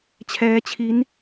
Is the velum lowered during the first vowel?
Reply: no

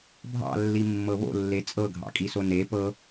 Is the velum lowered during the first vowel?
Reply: no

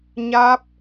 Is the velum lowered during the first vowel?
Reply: no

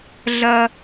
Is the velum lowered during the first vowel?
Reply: no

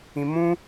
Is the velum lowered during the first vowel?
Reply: yes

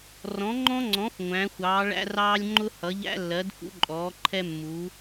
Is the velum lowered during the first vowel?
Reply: yes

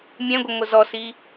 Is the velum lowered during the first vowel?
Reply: yes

